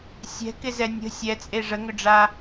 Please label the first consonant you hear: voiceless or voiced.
voiceless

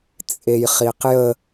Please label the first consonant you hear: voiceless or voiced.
voiceless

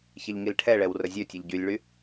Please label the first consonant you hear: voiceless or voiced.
voiceless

